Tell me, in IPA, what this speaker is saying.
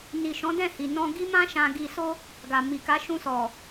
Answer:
n i˨ ʃ ɔ̃˨˦ d ɛ̃˦˨ h i˨ n ɔ̃˧ ɡ i˦ m ã˦ ʃ ã˧ ɡ i˧ s o˦ | ɡ a˨ m i˨ k a˨˦ ʃ ũ˧ s ɔ˨

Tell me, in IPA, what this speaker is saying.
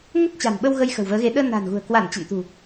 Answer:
ŋ ə˦˥ t̚ t͡ɕ a̤˨˩ n ɓ ə˧ w ɣ ə˧ j x ə̤˨˩ w v əː˨˦ ɣ e˨˦ ɗ əː˧ n a̤˨˩ n ɣ ṳ˨˩ ə̯ k w a˧˩ n t͡ɕ ə̰˧˨ n t̪ ṳ˨˩

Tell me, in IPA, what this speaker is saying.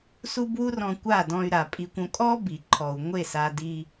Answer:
s u˦ b w u˦ r ɔ̃˧ kʷ a˦˨ d ɔ̃˧ y̯ ɾ a˨ pʼ i˧ kʷ õ˧ kʼ ɔ˦ b i˨ ǃʰ ɔ˨ u̯ ŋʷ e˦˨ s a˧ d i˧

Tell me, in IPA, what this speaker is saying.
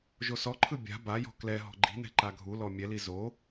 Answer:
ʒ o s ɔ ǃʰ ɯ bʲ a̤ b a j ɔ̤ k l ɛ ɦ ɔ̤ ɡ͡ǃ i̤ n ɛ̤ ǃ a ɡʱ u l ɔ mʲ ɛ l i z o

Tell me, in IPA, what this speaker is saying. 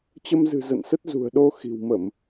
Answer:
t͡ɕ ə˧ m z ɨ̤˨˩ z ə̰˧˨ n s ə˦˥ t̚ z ṳ˨˩ ə̯ ɗ o˧ x i̤˨˩ w m ə˧˩˨ m

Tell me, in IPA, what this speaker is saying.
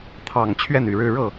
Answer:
t̪ʰ ɑ˨˩ ŋ t͡ɕʰ ɥ ɛ˥˩ n y˨˩ ɻ ɻ̩˥˧ ɻ ɤ˥˩

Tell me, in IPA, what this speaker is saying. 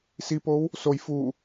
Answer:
s i p o w | s o j f u

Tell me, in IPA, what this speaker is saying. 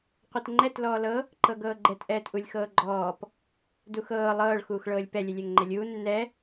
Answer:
qʷ ɤ t ŋ͡ǃ ɛ t l ɔː l ɤ | ǃ ɤ ɡ ɤː ɡ͡ǃ ɛ t ʔ ɛː t ʔ u lʲ x ɤː ɡ͡ǃ ɔː p | d u x ɤː lˠ ɤː ɭ x uː x ɭ ɤː lʲ p ɛ lʲ ɛ lʲ ɛ ŋ ŋ͡ǃ ɛ lʲ uː nː ɛ

